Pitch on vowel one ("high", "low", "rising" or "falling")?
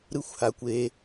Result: high